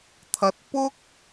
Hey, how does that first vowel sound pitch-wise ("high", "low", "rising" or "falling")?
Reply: rising